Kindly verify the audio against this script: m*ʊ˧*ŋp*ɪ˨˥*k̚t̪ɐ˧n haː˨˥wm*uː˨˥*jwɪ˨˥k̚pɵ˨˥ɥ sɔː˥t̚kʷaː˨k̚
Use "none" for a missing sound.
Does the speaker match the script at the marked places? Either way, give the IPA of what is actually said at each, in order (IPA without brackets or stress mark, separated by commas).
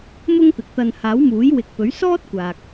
ʊ˥, ɪ˨˥, uː˨˥